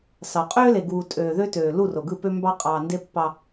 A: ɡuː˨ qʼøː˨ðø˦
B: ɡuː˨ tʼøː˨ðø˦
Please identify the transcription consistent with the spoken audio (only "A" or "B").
B